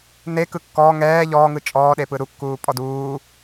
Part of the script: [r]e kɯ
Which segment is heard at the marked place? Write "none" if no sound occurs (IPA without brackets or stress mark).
n